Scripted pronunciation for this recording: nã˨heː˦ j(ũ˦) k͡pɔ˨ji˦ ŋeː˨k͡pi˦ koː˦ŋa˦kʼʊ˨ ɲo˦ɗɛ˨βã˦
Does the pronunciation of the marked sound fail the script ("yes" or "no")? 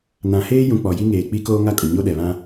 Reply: yes